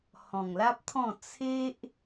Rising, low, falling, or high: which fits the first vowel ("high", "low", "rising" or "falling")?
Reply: low